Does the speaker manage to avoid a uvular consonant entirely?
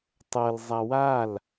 yes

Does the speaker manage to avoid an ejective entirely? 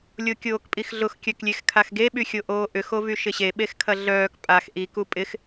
no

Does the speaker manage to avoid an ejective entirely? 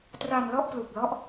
yes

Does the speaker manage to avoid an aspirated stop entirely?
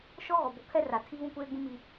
no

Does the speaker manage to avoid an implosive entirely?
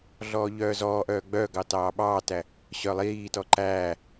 no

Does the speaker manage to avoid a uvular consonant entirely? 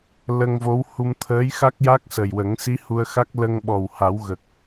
yes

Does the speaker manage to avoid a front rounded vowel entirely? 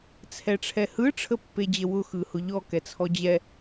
yes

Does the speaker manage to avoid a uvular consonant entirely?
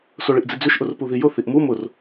yes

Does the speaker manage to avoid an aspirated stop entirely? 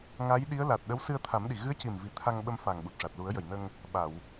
no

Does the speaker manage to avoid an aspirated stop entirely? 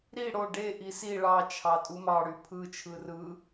no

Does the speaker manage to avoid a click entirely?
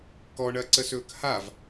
no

